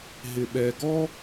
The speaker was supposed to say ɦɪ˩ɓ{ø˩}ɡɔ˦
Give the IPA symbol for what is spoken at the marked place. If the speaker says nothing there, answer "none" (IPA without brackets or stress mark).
ɛ˩